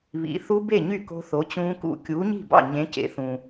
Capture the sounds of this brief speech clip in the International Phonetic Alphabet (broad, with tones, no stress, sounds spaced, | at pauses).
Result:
β ḭ˨˥ θ u˦˥ b e˥˩ ɲ y˥˩ k o̤˦˥ θ o˨˥ t͡ɕ ũː˦˥ k ṵ˥˩ kʲ uː˨˥ ɲ i̤˥˩ b ɑ̰˥˩ ɲ ẽ˨˥ c ḛ˨˥ θ ũ˨